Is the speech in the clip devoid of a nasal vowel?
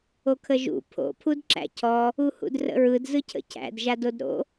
yes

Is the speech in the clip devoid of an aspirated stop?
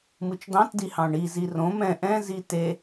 yes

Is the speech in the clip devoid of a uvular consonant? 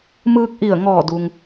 yes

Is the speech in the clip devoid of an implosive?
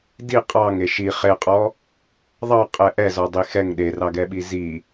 no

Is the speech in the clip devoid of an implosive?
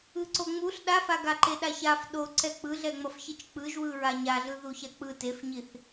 no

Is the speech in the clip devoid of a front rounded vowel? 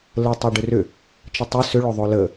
no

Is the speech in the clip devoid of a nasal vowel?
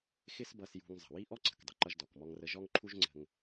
yes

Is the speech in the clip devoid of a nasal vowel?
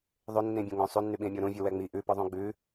no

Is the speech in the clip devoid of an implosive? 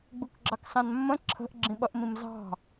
no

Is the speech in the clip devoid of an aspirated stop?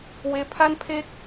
no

